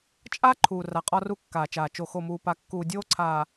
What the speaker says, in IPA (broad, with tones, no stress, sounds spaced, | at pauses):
t͡ʃʼ a˦ ǃʰ uː˨ r a˨ qʼ ɒ˦ r u˦ kː aː˨ t͡ʃ aː˨ t͡ʃ o˨ x o˨ m uː˨ p a˨ kː uː˨ dʲ oː˦ ǀʰ aː˨